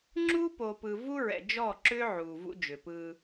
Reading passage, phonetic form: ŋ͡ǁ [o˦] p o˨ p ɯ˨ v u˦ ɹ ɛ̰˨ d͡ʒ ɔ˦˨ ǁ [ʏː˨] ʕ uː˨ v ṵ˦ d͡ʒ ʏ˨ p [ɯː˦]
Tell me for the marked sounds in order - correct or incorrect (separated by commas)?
incorrect, incorrect, correct